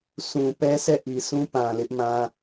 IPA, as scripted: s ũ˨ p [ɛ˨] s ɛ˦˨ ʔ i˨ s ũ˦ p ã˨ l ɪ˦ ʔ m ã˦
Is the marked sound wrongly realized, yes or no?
yes